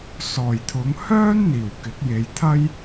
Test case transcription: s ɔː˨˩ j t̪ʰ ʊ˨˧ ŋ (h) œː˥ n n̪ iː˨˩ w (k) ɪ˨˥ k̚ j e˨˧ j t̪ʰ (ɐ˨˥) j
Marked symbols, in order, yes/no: yes, yes, no

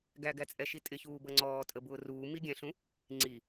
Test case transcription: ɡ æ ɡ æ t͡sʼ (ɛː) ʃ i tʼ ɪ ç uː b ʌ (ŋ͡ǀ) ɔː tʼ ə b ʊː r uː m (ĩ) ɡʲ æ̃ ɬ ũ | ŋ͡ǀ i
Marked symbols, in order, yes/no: no, yes, no

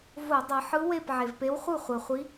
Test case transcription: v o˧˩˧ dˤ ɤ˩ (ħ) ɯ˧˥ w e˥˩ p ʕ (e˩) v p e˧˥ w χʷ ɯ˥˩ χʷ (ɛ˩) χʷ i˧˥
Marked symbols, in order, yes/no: yes, yes, yes

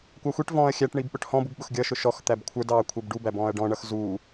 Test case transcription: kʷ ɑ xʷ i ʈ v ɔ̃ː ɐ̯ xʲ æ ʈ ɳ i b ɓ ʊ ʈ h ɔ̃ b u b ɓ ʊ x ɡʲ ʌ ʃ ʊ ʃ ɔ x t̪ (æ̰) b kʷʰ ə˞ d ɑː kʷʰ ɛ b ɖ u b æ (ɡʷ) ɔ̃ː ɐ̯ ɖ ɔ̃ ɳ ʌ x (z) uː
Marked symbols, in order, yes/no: no, no, yes

